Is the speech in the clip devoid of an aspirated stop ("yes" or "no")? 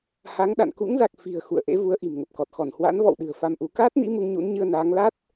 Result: yes